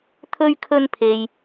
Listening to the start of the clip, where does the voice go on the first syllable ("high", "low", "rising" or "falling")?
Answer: high